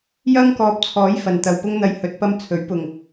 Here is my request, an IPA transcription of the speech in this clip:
j ɐ˥ ŋ k ɔː˧ p̚ t͡sʰ ɔː˨˥ j f ɐ˨ n t̪ ɐ˨ w p ʊ˥ ŋ n̪ ɐ˧ j h ɵ˨˥ t̚ p ɐ˧ m t͡sʰ ɵ˨˥ ɥ p ʊ˨ ŋ

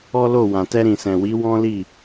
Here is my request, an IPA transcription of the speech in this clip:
ɔ˦ l o˦˨ w ã˨ t ɛ˧ ɾ ĩ˨ s ɛ̃˨ w i˨˦ w ɔ̃˦ l i˦˨

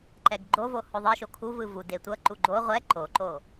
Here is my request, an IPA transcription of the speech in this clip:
ǃ ɛ ɡ ɡ͡ǃ o v o h o ðˤ i ʃ o kʰ u v ɯ v u d e tʷ ʌ ǃ u ɡ͡ǃ o ʁʷ ɛ ǃ o ǃ o

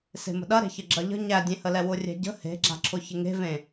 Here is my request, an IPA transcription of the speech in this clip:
s e̤ m ə̤ ɗ ɐ ɾ e̤ ç ə ɡ͡ǁ ɐ ʎ ə̤ ɲ æ dʲ ẽ h ə l ɛ w ʊ rʲ ɛ̤ ɟ ə̤ h e̤ ɡ͡ǁ a̤ ǁʰ ʊ ç ɪ ŋ e̤ v ẽ

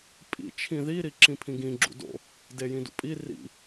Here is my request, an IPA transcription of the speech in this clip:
pʼ ḭ t͡ʃʰ ĩ ð i ɾ i ǁ ĩ pʰ ĩ ɡ ĩ ɡ͡ǁ ṵ d o̰ | d e j ĩ d ṵ pʼ i r ḭ

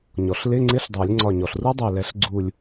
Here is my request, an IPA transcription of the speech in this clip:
ɲ ɔ˩ ɬ l ɪ˧˥˧ ŋ͡ǀ ɪ˦˥ ɬ dˤ ɜ˨˩˦ lʲ ŋ͡ǀ ɒ˧˩ ɲ ɔ˩ ɬ r u˦˥ dˤ ɛ˧˩ l ɛ˨˩˦ ɬ ɡ͡ǀ u˧˩ lʲ

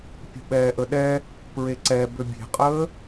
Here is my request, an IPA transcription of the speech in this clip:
pʲ ṳ ɓ ɛː ʔ ə ɗ ɛ | p ɹ e ǀ ɛ b ø bʲ e̤ qʼ əː

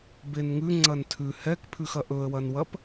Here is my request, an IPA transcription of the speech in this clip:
b e n ŋ ʉ ŋ͡ǀ ɐ n tʰ ʉ h ɛ k pʰ ʉ x ɐ ʔ ɵ ə̯ w ɐ n w ɐ p

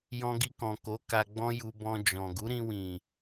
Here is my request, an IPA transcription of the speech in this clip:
j ɔ̃˧ ɡ i˧ k ɔ̃˨ k o˨˦ k a˧ ɡ͡b ɔ̃˦ j u˧ b ɔ̃˧ d͡ʒ ɔ̃˨ ɡ u˨˦ ɾ ĩ˧ w ĩ˨

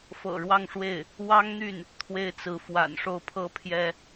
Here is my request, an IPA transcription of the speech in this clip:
f ɤ̰˨˩ ɻ w ɑ˥˧ ŋ ʂ w e˥˩ ɪ̯ | w ɑ˥ ŋ n̪ y˥˩ n | t̪ʰ w e˥ ɪ̯ t͡s ɹ̩˧˥ f w a̰˨˩ n ʂ o˥˩ ʊ̯ pʰ ɤ˥ pʰ j ɛ˥

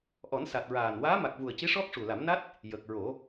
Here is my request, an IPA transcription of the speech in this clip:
ʔ ɔ˨˩˦ n s a˨˩ t̚ ɹ aː˨˩ n w aː˧˥ m a˨˩ k̚ v u˨˩ ə̯ c i˧˥ ʂ ɔ˦˥ k̚ ʂ u˨˩ l a˨˩˦ m n a˦˥ t̚ | j ə˨˩ k̚ ɹ o˨˩˦

